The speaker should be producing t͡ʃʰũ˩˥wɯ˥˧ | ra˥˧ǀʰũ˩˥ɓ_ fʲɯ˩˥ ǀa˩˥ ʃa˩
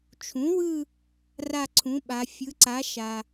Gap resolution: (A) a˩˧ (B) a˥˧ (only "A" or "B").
A